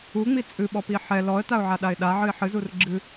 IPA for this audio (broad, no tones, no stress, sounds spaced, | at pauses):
u ŋ͡m i t͡sʼ ɨ ɓ ɔ p i ħ ɛ l ɔ ə̯ t a ʊ̯ ʕ a ɗ a ɪ̯ ɗ a ʕ ɨ ɪ̯ ħ ɨ z u r ɡ͡ǁ ɨ